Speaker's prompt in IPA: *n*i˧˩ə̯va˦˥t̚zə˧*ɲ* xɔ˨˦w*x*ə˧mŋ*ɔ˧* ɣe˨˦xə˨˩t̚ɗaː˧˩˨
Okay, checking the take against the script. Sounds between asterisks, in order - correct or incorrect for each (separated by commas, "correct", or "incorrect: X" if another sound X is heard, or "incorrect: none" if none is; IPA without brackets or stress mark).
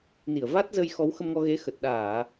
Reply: correct, incorrect: j, correct, correct